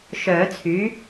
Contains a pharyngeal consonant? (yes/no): no